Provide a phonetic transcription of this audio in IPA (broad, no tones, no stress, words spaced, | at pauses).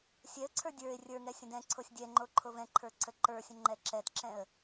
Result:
sʲɛə̯ǀʰə˞ dʲə˞ɪ̯ rʲə˞ŋɛ sʲə̃dɛ̃ǀʰosʲ dʲɛŋ͡ǃo ǃʰovɛ̃ǃʰə˞ ǀʰəǃə˞sʲə̃ ŋ͡ǃɛǁɛtǁɛ̃ə̯